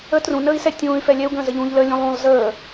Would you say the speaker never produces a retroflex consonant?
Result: yes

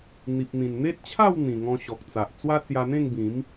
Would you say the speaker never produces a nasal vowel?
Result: no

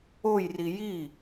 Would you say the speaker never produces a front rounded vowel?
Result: yes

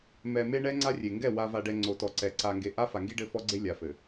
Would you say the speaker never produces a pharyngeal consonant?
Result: yes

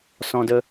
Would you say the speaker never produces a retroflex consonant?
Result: yes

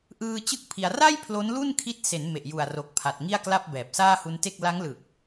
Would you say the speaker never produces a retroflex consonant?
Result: yes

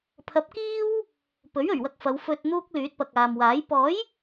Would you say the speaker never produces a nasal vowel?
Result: yes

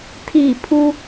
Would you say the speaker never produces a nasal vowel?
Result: yes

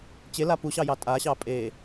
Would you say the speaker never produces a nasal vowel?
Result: yes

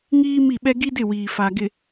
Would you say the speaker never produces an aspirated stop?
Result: yes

